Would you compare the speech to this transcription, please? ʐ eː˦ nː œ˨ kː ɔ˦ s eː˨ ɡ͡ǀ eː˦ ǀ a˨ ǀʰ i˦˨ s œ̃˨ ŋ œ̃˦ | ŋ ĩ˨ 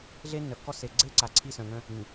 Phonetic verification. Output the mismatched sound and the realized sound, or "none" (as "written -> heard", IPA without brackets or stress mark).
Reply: ʐ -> ɮ